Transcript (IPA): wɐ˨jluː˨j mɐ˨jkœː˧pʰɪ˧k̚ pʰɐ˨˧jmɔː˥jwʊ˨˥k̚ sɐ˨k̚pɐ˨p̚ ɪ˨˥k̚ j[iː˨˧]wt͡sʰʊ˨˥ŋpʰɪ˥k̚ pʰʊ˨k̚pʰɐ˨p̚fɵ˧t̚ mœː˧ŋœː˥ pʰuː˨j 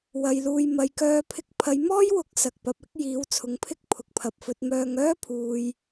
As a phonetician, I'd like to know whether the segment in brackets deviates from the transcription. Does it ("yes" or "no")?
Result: yes